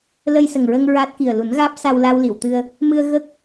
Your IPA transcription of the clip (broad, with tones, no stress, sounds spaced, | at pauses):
l ə˧ j s ə˨˩ ŋ ɹ ə˧ ŋ ɹ a˦˥ t̚ k i˨˩ ə̯ l u˨˩˦ n ɣ aː˦˥ p̚ s a˧ w l a˧ w l i˨˩˨ w t̪ ɨ˧ ə̯ | m ɨ˧ ə̯ ɣ ə˦˥ k̚